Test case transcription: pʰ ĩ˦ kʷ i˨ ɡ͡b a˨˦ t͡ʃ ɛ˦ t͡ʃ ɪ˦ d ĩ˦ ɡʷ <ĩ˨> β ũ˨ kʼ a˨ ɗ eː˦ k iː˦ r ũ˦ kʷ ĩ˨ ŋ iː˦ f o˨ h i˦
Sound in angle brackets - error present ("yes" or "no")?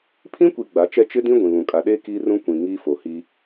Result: no